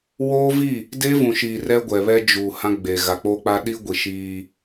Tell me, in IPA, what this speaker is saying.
woː˦vi˦˨ | de˦vũ˨ʃi˨ rɛ˦ɡʷɛ˨βɛ˦ d͡ʒu˨hã˦ ɡ͡be˨ ɣa˨k͡po˦k͡pa˦ ɗi˦ɡʷi˨ ʃiː˦

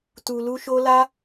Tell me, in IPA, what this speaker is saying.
tu˨lu˧ʃo˧la˦

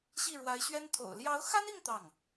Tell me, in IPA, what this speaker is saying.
ɕi˥˩ɻwa˧˥ɪ̯ɕɥɛ˥n t̪ʰo̰˨˩ʊ̯ljɑ˧˥ʊ̯xa˥ni˥˧ŋ t̪ɑ˥˩ŋ

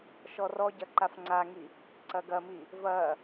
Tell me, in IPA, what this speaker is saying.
ʃɔrɔɟɐ ǃafŋ͡ǀaŋi | ǀɐɡɐmi | vɐ

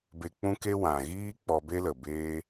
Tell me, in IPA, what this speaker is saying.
be˨k͡pũ˧ ke˦wã˨ ɣiː˦ k͡pɔ˧be˦lə˨beː˦

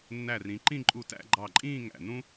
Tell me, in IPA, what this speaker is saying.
nːæ˧˩rĩ˩˧ǃĩ˥˧ ǃʼu˧˩tæ̰˥˧ɡ͡ǃɑ˧˩ǃʼĩː˥˧ ŋæ̰˧˩nũ˥

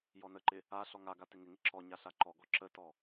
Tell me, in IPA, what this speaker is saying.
jɔnəǃɪ | a ɬɔŋaɡa tɪŋɪŋɪ ǁɔɲa ɬaǃɔɡɔ ǁətɔ

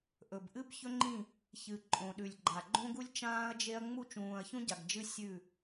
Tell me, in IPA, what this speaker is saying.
ʔɵ˨b ʔɨ˦bçɵ˦ŋ͡ǃĩ˦˨ | çɨ˨ ǃʼõ˨ɗʉ˨lʲɡ͡ǃa˨ ɡ͡ǃõ˦ɡu˦lʲ t͡ʃãː˦ɐ̯d͡ʒe˦ɐ̯ ŋ͡mu˦˨t͡ʃũː˨ɐ̯çũ˦ ɟa˨ɡd͡ʒɨ˦ sʲʉ˦˨

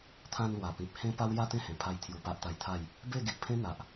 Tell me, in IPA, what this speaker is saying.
t̪ʰã˧nlwa˨˩pĩ˨p̚ hẽ˦pa˦w ja˥˧t̪ẽ˦hẽ˨˩pʰa˧j t̪ʰju˧pa˦ʔt̪a˧jt̪ʰa˥˧j | be˥˧ɡi˨ʔpʰẽ˦ n̪a˨ʔ

